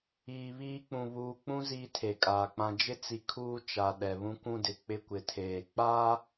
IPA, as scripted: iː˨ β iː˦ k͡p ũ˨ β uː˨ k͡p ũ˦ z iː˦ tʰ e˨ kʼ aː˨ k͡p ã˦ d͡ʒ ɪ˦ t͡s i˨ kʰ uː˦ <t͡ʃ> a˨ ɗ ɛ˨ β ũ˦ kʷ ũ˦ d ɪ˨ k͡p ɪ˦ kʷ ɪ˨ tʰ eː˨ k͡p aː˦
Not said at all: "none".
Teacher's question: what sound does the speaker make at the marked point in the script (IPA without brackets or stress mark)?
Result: t͡ʃ